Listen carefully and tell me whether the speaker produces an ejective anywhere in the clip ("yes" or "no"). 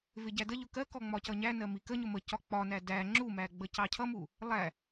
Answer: no